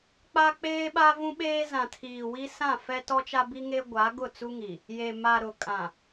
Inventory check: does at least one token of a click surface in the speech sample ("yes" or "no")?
no